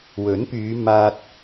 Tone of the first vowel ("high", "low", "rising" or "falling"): rising